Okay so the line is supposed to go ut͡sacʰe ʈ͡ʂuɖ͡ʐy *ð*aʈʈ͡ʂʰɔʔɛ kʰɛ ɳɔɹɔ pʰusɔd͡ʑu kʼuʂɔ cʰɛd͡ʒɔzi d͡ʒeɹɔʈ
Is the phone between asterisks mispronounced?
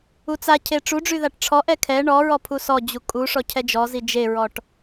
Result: no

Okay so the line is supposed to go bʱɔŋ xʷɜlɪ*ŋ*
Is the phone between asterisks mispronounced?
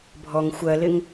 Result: no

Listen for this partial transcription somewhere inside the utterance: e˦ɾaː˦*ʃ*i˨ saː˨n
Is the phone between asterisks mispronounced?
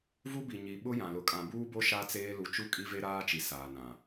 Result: yes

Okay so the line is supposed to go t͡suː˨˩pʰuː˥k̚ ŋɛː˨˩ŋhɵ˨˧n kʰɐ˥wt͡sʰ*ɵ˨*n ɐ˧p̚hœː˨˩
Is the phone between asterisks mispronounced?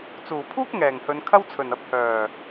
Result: yes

